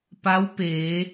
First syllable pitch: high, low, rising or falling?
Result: rising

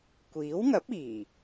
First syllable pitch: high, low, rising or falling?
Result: rising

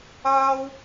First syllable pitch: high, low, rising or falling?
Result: high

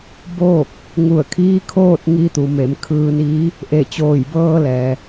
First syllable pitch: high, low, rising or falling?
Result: falling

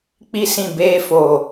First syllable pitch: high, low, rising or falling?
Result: high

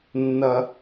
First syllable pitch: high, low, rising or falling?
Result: high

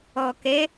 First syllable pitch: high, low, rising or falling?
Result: low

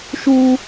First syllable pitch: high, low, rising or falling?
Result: high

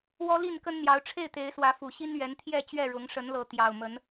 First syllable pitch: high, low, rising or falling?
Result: high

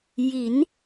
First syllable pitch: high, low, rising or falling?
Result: rising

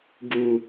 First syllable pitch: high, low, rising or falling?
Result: low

